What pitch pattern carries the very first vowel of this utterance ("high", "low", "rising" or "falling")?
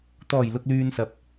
low